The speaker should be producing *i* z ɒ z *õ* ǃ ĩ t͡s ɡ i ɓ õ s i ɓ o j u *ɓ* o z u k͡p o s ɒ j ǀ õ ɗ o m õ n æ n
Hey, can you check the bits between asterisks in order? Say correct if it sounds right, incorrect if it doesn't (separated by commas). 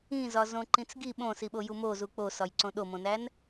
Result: incorrect, correct, incorrect